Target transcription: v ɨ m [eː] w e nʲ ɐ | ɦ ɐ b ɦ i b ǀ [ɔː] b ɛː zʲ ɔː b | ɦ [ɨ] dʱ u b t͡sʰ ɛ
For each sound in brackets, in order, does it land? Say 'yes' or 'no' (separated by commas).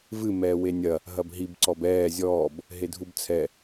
no, no, no